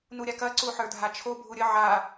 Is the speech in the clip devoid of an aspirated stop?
no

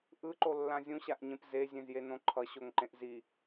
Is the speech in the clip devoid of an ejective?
yes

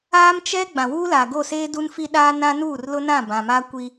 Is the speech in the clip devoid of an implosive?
no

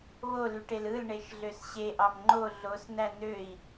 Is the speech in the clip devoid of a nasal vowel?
yes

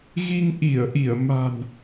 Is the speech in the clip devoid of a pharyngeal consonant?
yes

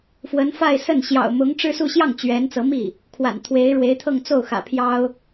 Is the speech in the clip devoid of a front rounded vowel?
yes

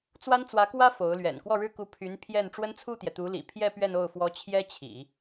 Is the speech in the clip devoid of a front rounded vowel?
no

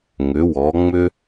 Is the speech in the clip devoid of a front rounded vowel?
no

